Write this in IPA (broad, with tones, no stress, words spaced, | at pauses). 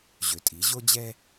ʑø˨tʼi˨˦ ʑo˦d͡ʑɛ˦